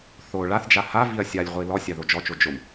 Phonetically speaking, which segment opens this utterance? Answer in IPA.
θ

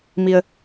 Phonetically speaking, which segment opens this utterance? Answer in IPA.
m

